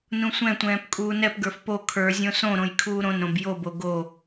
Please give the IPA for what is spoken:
nũsʷɛ̃tʷɛ̃ːp kʼuːnɛpɡə˞f po kʰə˞zʲõ sõɾõj kʰuːɾõnɾõb jobo ɡo

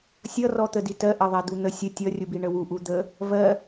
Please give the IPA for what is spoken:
sʲʌrɔ t̪əditɜ ʔɜðˤɛd̪un̪ə sʲə tʲʌrʲubi ɳəwu ʔud̪ə | vɜ

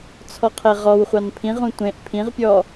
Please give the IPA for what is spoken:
t͡sʰɔqʰeʁɔwχʷɑn pʰĩʁũ tʷẽʔ pʰĩʁpʲɔ

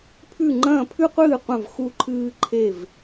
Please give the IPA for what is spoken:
pʰʉ˦˨ŋ͡ǃɐ̃ː˦˨pʰʉ˦qʷɨː˦˨ qʷɐ̃˦˨v xu˦ǃʰɨː˦ ǃʰe˦˨v

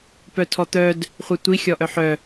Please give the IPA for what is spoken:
pœtʰɔt̪œd | χʷetʷi xʲɔʔœħœ

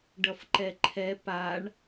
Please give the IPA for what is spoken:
ɖʌfǃɛǃʰɛ paɳ

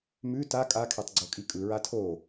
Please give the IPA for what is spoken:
mʉ ta kʼakʰɛtˤ ɡ͡ǀokʼikʼɯ ɹatʰo

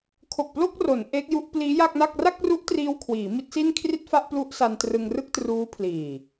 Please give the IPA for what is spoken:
kʰo˨˩k̚plo˥˩k̚ro˩˦n ʔe˦˥k̚ju˦˥ʔ pliː˦˥ja˥˩k̚na˥˩k̚ ra˥˩k̚ru˦˥ʔtriː˧w kʰwiː˩˦mi˦˥t̚si˥˩n kʰri˥˩t̚fa˥˩ʔplu˦˥ʔsa˧n trɯ˧ŋrɯ˥˩k̚truː˦˥pʰliː˨˩

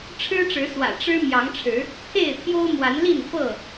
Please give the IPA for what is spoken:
ʈ͡ʂʰɻ̩˦ʈ͡ʂɻ̩˨˦swä̰˨˩ ʈ͡ʂɻ̩˦ mjɑ˨˦ŋʈ͡ʂʰɻ̩˨˦ | t̪ʰe˥˨ɪ̯t̪ʰjo˦ʊ̯ mwa˨˦nli˥˨n fɤ˥˨

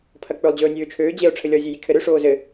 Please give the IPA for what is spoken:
pʰɐk͡pɵlˠ d͡ʑɵːnʲøːt͡ʃʰøː d͡ʑeo̯ ʈ͡ʂʰɘlʲɔ zʲejikʰɘɾø ʂoːzɘ

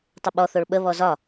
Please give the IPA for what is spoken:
tˤʏɓɔ θoɭɓə βɔzɒ

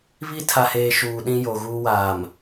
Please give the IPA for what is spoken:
βi˦tʰa˨heː˨ ʃuː˨ɗĩ˦ jo˨ɣuː˦waː˨m

